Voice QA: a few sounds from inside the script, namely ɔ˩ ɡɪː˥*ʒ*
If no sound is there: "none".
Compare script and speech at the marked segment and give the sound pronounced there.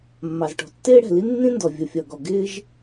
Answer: ʒ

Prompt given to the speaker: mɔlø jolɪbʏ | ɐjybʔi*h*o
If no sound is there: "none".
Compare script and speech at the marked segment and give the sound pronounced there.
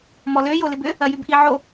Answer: ʕ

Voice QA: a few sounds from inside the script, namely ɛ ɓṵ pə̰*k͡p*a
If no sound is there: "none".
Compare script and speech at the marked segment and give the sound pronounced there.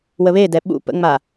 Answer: ŋ͡m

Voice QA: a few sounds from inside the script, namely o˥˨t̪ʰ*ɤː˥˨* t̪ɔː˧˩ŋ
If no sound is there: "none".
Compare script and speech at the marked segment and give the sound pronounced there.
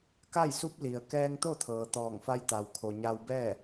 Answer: ɤː˩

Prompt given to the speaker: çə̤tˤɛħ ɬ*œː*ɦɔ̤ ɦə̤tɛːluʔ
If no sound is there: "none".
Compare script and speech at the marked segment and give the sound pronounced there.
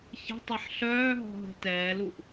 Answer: œː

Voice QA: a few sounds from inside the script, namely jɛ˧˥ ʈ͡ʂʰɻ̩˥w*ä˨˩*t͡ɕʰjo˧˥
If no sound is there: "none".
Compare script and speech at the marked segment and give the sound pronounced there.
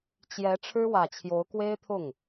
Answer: ä˨˩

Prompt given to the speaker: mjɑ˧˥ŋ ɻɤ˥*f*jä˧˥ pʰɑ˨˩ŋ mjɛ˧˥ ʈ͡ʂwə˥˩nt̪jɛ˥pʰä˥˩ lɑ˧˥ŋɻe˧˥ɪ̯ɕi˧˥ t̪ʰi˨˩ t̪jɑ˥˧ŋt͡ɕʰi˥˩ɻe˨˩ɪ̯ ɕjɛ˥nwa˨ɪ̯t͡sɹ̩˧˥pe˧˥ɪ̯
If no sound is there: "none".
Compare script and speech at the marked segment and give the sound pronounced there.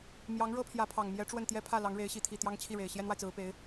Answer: pʰ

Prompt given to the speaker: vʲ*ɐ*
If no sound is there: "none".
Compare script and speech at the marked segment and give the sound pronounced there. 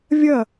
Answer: ɐ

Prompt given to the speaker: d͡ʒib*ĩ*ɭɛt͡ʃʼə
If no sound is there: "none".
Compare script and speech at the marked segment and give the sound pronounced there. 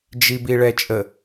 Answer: i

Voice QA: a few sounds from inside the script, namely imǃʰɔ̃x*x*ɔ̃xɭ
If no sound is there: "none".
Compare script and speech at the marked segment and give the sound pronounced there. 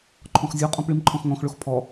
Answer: ŋ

